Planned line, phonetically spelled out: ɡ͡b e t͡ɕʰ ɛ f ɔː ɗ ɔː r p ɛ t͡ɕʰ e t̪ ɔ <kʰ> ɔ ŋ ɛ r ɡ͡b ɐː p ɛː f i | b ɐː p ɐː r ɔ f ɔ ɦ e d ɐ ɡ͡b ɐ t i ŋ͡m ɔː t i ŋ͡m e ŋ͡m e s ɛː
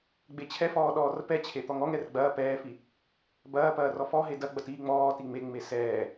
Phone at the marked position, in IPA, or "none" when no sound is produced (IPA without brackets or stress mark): ŋ